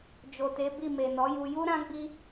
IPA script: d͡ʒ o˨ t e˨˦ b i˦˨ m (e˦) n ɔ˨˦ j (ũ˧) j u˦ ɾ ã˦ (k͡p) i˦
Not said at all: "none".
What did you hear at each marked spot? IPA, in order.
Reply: e˨, u˧, ɡ͡b

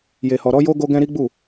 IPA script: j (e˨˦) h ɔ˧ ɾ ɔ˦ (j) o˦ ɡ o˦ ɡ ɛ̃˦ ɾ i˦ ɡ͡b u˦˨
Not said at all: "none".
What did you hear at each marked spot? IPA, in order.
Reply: e˧, j

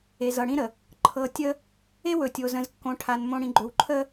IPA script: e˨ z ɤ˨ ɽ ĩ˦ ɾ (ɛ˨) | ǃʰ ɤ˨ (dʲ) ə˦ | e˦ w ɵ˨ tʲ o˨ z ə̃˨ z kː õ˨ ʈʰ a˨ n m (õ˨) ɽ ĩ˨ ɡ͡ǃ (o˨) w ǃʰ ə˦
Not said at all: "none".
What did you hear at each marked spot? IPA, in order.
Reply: ə˨, tʲ, õ˨, ɵ˨

